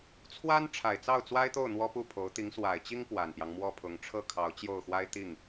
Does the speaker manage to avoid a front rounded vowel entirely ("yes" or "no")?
yes